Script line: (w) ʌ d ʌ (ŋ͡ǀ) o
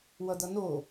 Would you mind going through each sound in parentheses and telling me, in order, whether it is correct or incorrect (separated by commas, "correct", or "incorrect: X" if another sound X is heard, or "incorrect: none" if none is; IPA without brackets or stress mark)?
correct, incorrect: n